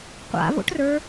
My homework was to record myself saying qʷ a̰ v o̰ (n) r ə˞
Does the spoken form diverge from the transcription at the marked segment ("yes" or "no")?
yes